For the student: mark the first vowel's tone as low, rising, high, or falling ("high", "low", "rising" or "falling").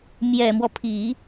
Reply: low